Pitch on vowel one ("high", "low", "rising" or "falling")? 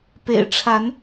low